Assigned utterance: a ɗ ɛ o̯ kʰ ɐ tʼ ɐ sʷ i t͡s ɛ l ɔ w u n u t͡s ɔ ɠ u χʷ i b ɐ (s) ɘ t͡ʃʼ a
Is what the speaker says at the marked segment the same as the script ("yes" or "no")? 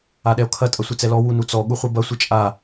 no